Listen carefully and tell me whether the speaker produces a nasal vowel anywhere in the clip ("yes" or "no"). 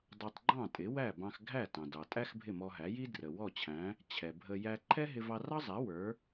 yes